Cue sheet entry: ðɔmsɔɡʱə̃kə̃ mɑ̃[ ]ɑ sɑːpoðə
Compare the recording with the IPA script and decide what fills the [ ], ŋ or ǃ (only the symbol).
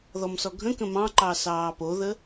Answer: ǃ